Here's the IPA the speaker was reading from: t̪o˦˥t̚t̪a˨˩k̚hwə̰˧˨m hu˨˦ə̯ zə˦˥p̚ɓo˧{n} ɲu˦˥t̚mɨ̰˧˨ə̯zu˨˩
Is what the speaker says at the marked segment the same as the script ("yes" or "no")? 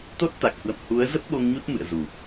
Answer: no